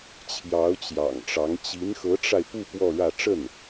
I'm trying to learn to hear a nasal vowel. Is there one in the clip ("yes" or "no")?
no